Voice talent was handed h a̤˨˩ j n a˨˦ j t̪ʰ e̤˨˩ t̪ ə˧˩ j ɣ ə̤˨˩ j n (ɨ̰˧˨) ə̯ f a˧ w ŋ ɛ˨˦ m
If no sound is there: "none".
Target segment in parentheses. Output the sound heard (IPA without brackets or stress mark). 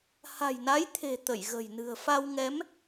ɨ̤˨˩